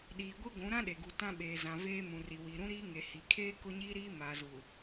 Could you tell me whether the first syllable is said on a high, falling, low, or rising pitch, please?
low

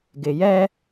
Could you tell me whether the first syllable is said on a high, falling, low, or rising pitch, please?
low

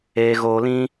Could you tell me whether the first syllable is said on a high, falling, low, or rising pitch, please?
low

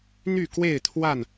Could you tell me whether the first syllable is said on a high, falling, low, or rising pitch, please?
falling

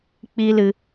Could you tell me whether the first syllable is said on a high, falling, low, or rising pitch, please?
high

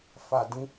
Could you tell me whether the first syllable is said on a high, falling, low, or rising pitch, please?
low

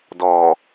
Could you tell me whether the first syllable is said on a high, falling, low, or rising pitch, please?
low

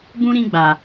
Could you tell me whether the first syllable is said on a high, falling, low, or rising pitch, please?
high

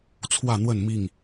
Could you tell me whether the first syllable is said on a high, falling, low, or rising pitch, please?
falling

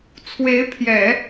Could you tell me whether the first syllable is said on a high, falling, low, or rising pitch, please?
rising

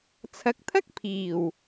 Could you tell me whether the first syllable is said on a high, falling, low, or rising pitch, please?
rising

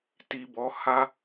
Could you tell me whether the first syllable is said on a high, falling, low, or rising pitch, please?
low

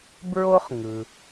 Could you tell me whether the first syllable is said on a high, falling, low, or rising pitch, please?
high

